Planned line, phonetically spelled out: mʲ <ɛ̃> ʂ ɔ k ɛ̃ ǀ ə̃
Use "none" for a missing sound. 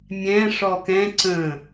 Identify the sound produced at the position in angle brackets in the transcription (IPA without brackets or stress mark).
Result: ɛ̃